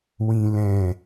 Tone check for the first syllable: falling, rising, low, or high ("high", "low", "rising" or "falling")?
low